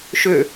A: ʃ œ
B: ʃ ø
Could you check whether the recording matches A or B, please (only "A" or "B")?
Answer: B